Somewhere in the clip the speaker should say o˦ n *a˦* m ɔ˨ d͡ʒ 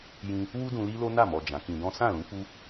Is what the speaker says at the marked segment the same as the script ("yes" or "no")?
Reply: no